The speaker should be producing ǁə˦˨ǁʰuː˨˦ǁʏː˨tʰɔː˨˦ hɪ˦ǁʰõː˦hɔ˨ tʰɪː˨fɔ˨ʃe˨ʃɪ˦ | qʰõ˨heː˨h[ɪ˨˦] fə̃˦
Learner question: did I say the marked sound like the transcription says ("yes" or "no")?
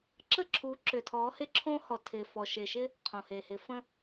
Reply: yes